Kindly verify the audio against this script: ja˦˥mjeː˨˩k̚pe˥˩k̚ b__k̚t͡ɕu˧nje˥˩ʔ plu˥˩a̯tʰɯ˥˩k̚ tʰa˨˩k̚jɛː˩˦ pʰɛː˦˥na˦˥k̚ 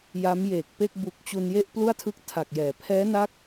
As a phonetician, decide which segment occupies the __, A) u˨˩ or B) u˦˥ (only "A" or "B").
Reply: A